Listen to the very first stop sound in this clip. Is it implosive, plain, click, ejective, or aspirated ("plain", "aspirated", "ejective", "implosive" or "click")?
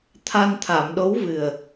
aspirated